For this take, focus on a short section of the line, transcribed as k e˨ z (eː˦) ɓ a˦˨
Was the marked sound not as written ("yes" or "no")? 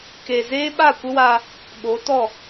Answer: no